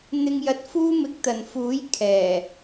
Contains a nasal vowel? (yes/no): no